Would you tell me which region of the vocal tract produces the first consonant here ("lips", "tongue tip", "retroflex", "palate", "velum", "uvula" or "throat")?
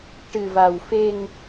retroflex